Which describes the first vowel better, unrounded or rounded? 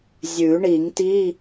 rounded